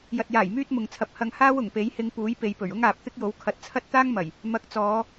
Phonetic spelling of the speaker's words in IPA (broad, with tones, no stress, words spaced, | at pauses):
jɐ˨t̚jaː˨˩j myː˥t̚mʊ˨ŋ t͡sʰɐ˧p̚ hɐ˧ŋhaː˥w ʊ˨˩ŋpe˨˥j hɪ˧ŋpuː˨˥jpe˨˧jpɵ˨˩ɥ ʊ˥ŋaː˨p̚t̪ɪ˥k̚jo˨˥w kʰɐ˨˥t̚t͡sʰɐ˥t̚t̪aː˥ŋmɐ˨˩j | mɐ˨˥k̚t͡sɔː˨˧